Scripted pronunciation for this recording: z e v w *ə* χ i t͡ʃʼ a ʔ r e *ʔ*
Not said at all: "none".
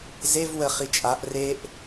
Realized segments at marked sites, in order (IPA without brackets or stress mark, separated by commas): ə, ʔ